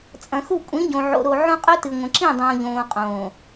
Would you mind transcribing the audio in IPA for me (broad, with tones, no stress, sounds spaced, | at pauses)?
t͡sʼ ɐ̃˨ x u˦˨ kʷʼ ĩ˨˦ ɟ õ˨ ʕ o̰˨ ɾ o˨ ʕ õ˦ qʼ ɵ˦ t ɨ˨ ŋʷ ɐ̃˨ ǁ ĩ˦˨ dˤ õː˨ ʎ õː˨ qʼ õː˨